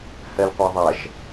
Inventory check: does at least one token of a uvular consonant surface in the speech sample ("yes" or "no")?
yes